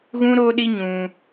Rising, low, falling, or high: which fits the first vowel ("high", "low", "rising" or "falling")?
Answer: high